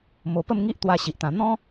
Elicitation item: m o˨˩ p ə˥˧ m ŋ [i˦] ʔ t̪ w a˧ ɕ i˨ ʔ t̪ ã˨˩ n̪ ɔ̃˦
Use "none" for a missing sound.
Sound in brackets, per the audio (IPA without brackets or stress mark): i˦